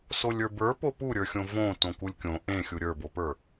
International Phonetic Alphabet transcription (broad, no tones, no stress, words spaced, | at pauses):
solʲə˞bə˞ popuɾʲə˞xʲõ võ tõkulʲkʲõ ʔẽ xʲuɾʲə˞bopə˞